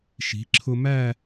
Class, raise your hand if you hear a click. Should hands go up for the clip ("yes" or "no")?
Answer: yes